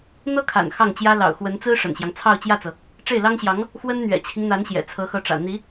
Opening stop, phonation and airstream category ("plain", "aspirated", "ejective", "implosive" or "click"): aspirated